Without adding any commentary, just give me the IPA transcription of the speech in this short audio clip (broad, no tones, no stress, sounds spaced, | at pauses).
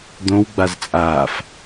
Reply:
d̪ õ w ɡ͡b a z t͡sʼ aː f